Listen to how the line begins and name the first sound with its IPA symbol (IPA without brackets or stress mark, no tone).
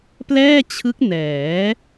p